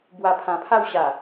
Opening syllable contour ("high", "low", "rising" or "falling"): low